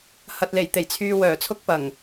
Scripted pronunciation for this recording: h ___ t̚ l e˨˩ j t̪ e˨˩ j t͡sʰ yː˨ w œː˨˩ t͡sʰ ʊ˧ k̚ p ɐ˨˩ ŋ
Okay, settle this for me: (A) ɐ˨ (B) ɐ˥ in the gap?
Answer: A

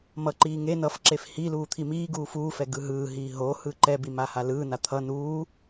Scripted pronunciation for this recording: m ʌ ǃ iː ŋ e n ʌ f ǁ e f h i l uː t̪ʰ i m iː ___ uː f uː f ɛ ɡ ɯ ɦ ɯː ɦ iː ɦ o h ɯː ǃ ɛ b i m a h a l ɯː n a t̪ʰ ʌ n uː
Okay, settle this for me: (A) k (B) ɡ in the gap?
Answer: B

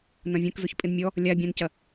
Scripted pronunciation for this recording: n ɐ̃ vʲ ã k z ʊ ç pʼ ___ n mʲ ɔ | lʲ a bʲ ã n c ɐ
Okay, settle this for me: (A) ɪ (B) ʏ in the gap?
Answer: A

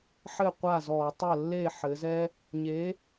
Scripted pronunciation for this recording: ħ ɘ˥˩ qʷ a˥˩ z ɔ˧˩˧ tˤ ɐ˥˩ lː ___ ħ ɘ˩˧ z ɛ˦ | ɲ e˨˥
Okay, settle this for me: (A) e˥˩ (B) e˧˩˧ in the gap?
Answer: A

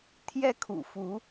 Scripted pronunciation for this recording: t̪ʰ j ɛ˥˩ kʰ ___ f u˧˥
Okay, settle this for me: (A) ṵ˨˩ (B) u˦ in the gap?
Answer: A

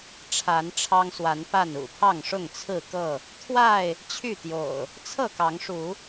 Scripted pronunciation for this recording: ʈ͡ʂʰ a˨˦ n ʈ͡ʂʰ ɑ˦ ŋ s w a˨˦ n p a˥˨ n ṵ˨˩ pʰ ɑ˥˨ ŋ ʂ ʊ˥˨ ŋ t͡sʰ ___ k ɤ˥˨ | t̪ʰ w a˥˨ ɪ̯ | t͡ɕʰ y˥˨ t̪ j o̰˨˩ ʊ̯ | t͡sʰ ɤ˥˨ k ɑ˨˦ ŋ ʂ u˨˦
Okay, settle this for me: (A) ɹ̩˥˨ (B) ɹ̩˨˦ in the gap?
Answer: A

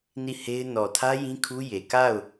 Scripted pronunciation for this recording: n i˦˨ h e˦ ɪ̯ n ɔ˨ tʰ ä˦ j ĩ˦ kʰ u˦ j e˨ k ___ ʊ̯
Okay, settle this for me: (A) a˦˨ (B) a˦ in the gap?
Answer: A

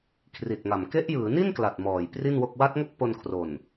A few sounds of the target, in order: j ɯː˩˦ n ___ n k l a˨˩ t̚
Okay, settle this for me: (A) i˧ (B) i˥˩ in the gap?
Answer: B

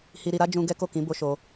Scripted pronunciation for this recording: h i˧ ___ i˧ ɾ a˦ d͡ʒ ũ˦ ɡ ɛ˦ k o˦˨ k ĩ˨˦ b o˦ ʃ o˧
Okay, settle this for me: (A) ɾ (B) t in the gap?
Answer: A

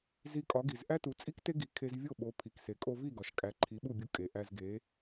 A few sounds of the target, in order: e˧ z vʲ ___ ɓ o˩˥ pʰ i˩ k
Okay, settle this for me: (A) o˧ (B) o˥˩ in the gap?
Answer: B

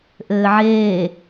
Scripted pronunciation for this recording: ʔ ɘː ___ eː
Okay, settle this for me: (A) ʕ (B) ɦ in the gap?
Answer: A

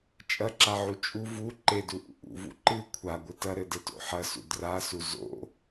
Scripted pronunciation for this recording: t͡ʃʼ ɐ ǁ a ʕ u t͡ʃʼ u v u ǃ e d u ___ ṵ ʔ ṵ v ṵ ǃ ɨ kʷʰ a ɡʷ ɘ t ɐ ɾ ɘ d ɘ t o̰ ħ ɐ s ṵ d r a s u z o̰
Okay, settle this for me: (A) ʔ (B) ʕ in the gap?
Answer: A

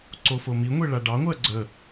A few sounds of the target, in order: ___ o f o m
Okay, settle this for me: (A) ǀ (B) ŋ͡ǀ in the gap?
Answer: A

